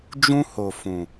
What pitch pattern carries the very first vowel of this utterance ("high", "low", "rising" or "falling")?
high